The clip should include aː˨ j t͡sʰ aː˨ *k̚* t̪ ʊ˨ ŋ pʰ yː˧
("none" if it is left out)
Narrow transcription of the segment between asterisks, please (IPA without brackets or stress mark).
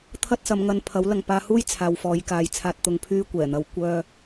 t̚